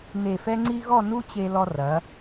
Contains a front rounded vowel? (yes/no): no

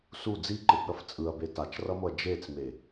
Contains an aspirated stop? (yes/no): no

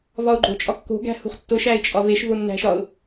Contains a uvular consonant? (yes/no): yes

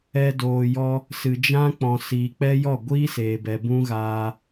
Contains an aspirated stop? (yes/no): no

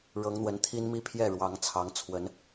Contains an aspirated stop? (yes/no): yes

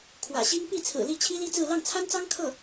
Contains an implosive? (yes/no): no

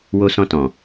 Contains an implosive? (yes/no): no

